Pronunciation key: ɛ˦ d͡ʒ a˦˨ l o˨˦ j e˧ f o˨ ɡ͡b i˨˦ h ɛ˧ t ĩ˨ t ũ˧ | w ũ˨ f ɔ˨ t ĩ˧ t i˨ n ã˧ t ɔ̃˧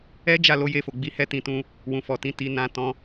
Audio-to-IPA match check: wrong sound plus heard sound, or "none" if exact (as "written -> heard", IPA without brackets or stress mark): none